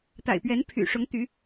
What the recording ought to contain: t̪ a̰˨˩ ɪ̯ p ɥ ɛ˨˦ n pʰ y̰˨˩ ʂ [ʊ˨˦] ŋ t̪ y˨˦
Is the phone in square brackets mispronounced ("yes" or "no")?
no